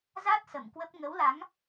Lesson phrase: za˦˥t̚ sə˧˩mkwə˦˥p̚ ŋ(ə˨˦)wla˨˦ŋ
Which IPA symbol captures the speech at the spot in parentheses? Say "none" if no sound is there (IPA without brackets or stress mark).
ə˨˦